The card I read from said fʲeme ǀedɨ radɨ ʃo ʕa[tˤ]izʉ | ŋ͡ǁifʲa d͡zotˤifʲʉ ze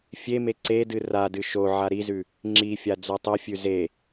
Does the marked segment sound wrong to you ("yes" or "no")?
yes